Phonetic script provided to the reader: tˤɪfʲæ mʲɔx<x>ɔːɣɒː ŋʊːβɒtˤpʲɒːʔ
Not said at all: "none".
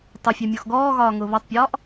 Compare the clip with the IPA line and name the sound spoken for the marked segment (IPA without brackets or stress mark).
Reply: ɡ